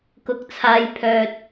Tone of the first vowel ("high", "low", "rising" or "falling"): low